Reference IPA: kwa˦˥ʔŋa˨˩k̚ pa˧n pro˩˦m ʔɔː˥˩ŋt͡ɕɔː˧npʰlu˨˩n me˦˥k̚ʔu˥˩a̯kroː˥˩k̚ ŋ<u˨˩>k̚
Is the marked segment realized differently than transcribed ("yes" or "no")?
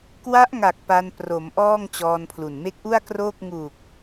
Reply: no